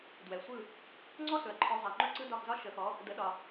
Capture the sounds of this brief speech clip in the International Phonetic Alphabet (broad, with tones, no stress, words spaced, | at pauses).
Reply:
dwɛ˩sʷɯ˥˩ | ŋ͡ǀɔ˥sɵ˩ɐ̯ǃʰɔ˩˥ zˤɛ˩ŋ͡ǃɵ˥˩ ǀɯ˥dɒ˥˩xzɒ˥ ʃə˩˥xɔ˩˥ | də˩˥ɗɒ˩